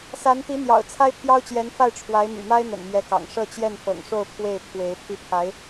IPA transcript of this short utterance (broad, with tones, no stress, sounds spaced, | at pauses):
s a˧˥ n t̪ i˧˥ n̪ j ɑ̰˨˩ ʊ̯ t͡sʰ a˥ ɪ̯ pʰ j ɑ˥ ʊ̯ t͡ɕ j ɛ˧˥ n f a˥˩ ɪ̯ ʈ͡ʂʰ w a˧˥ ɪ̯ m y̰˨˩ m a˥ ɪ̯ n̪ ə̰˨˩ n m j ɛ˧˥ k ɑ̰˨˩ ŋ ʂ ɤ˥˧ t͡ɕ j ɛ˥˩ n f ɤ̰˨˩ ŋ ʂ o˥˧ ʊ̯ pʰ w e˥˩ ɪ̯ pʰ w e˧˥ ɪ̯ pʰ i˥˩ pʰ a˧˥ ɪ̯